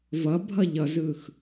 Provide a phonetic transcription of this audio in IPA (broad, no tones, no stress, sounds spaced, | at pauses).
v ʌ bʱ ʌ ʎ ʌ z ɯ x